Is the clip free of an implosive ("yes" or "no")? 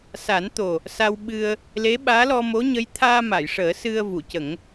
no